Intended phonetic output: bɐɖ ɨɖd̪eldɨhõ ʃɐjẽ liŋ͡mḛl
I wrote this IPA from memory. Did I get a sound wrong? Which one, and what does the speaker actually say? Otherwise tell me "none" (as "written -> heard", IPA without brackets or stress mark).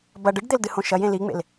none